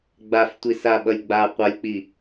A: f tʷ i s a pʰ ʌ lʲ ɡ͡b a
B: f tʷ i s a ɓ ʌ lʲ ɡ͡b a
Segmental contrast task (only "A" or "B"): B